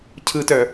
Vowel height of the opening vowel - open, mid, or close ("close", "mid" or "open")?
close